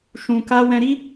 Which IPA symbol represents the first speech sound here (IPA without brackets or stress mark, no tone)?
ʃ